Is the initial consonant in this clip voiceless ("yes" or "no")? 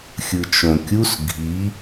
yes